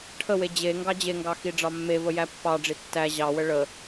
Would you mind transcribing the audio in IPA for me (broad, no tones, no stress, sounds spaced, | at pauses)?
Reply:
ʈʰ ə w e d͡ʑ e ŋ ɡ ɑ d͡ʑ e ŋ ɡ ɑ x i ɖ͡ʐ ɑ mː e v ə j æ pː ɑ ɖ͡ʐ i tː æ ʑ ɑ w ə ɭ ə